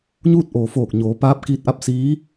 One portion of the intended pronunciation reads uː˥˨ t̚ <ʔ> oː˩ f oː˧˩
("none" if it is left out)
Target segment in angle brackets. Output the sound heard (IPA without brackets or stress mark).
ʔ